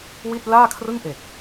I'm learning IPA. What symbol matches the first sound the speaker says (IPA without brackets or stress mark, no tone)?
w